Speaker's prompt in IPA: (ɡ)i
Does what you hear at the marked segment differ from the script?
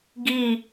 no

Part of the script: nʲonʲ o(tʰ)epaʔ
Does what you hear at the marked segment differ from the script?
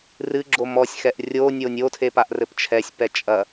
no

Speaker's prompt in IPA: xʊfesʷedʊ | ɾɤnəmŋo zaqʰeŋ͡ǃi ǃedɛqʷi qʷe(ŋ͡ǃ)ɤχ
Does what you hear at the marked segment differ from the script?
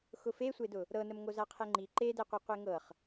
yes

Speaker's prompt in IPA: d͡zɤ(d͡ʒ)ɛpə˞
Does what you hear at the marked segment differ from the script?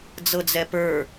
yes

